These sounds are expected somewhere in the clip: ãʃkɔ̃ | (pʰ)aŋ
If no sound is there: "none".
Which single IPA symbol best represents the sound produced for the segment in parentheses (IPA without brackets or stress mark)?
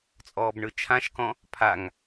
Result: pʰ